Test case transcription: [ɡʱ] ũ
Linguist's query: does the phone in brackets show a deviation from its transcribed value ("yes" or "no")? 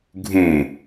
no